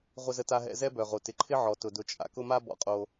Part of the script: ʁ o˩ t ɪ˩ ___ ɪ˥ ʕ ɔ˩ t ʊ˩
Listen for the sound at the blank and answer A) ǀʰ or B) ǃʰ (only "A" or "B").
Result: B